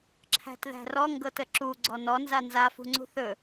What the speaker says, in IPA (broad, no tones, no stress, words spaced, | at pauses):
ǁʰæ̤tðæ̤rɔ ŋɡɤtəǁu ɡ͡ǀɔnɔ nzanza fṳŋ͡ǀṳθɵ